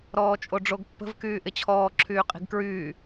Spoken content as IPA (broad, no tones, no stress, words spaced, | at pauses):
ɾɔːt͡ʃʼoɖ͡ʐoɡpːə̤v kyːʔɪt͡ɕʰɔː ǁʰyːqʼi̤ɡkɹyː